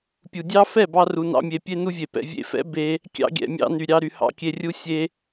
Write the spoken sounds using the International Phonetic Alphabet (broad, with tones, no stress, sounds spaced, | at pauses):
pʲ u˨ dʲ ɑ˦ f ɛ˦˨ b ɑ˧ r u˧ n ɑ̰˦ mʲ e˧ pʲ e˦ n u˦ vʲ e˨ p ɛ̰˧ vʲ ḛ˧ f ɛ̰˦ b e˦ | kʲ ɑ̰˧ ɡʲ ɛ̰˨ mʲ ɑ̰˧ n y˨ ɾʲ ɑ˧ ɾ y˨ h ɑ̰˦ kʲ e˧ rʲ u˦ sʲ e˦